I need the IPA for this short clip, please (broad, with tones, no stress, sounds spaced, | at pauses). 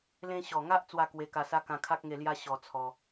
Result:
l ẽ˧ ɕ ɔ˨˩ ŋ a˦ ʔ t͡s w a˥˧ k w e˧ k a˧ s a˦ k ã˧ kʰ a˦ k̚ ŋ e˧ l j a˦ ɕ ɔ˧ t͡sʰ ɔ˧